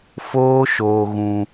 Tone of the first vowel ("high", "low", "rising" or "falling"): high